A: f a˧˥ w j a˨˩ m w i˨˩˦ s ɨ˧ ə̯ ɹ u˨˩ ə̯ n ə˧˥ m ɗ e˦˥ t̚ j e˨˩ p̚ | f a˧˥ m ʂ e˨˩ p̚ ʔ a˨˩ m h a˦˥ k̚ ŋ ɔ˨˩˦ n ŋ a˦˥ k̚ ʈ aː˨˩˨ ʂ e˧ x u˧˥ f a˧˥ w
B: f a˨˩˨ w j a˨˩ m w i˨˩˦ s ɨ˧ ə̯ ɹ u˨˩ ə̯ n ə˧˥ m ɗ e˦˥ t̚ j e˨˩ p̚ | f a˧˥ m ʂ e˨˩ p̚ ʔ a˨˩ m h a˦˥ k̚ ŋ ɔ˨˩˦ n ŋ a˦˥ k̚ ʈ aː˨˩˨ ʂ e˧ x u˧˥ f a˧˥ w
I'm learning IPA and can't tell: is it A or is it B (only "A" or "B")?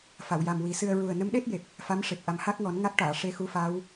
B